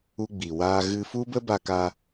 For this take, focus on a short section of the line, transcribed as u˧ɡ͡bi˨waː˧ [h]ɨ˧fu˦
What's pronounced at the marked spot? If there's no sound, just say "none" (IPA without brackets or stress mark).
ɣ